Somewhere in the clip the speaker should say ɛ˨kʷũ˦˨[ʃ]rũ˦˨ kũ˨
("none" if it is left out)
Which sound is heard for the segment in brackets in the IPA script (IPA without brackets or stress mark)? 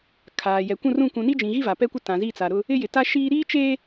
none